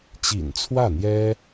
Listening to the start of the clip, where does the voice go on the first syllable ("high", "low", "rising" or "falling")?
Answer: low